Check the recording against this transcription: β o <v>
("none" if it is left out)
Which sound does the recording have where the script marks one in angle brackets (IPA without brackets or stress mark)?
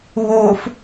f